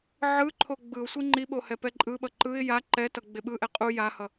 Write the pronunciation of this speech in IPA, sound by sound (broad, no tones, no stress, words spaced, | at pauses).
ʕɯǃʰo ɡ͡bɯʊ̯sʷi ŋ͡ǃiɓo hɛpɛǃʼɯɓʌ ǃɯɪ̯ ja ǃɛtʌ ɡ͡beɓɯʔɛ qʼu jahʌ